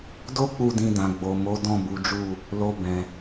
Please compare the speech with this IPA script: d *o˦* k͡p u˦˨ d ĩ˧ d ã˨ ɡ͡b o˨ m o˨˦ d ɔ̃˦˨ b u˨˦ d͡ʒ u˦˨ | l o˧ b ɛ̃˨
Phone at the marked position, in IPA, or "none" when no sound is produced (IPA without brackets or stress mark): o˦